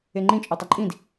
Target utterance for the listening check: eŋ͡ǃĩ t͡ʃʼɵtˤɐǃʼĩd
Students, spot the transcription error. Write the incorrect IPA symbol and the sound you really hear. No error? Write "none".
none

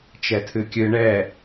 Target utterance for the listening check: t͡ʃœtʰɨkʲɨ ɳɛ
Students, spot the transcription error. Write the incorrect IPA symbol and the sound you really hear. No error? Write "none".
œ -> ɛ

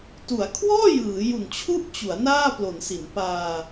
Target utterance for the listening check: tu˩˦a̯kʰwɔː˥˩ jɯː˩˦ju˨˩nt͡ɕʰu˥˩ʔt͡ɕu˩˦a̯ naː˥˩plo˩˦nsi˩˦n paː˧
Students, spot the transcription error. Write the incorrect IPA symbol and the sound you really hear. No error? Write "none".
none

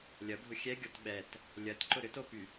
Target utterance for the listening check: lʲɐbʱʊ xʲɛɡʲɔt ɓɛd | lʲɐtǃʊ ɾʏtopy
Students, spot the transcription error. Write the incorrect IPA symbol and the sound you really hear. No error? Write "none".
d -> t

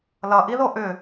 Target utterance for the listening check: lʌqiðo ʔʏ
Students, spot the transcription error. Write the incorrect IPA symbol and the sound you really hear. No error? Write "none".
q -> ʔ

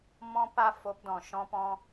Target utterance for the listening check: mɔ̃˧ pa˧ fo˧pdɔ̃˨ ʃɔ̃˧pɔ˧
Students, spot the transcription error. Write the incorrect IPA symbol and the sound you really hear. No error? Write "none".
ɔ˧ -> ɔ̃˧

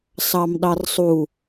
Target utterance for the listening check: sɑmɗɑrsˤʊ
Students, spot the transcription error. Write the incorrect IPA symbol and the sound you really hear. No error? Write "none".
ʊ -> u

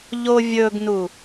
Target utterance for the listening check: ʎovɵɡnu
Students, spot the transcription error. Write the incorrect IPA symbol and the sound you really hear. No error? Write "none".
v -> vʲ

